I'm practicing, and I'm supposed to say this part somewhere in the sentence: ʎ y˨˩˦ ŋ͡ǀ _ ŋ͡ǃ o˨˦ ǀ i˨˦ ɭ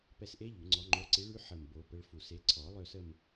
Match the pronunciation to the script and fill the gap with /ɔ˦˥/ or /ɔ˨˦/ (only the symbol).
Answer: ɔ˨˦